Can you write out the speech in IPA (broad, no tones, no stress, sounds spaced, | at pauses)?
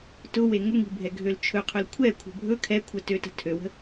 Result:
t ʊ w e ŋ ʊ ŋ i̤ bʱ ɛ ɡʱ ø l t͡ʃʰ ɵ qʰ ɵ l kʷʰ ɛ kʷʰ ə̤ bʱ ɵ kʰ ɛ kʷʰ ə t ø t ə̤ tʰ ø w ə̤